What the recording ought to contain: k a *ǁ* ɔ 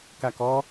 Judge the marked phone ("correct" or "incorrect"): incorrect